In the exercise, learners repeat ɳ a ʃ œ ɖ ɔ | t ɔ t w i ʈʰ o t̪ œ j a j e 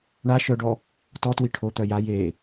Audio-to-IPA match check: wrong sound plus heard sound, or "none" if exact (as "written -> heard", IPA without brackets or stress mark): none